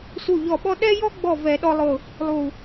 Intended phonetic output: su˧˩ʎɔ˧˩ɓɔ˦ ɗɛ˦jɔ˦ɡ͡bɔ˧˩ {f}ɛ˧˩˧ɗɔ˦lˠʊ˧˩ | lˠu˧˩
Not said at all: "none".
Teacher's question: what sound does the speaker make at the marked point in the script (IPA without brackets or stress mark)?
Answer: v